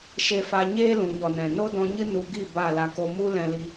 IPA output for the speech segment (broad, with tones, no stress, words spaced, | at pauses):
ʃe˧fa˧ ɲeː˦lũ˨ɲɔ˨nɛ̃˨ no˦dɔ̃˧ɲɨ˦ nu˧ɡi˦˨ ba˦˨la˧ko˦ mu˦ lɛ̃˧li˧